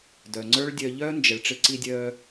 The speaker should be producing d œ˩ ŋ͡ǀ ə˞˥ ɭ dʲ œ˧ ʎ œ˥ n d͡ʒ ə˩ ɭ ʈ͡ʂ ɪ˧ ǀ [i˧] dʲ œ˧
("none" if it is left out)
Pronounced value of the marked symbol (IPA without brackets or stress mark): i˧